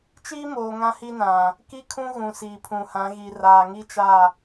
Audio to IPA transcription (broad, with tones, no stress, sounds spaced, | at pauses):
t͡ʃ iː˦ m oː˨ ŋ ã˦ h i˦ n ã˨ | k i˦ kʰ ũ˦ ɣ ũ˨ s iː˨ pʰ ũ˨ h ã˨˦ ɣ i˨ r aː˨ ŋ i˦ t͡ʃ a˦˨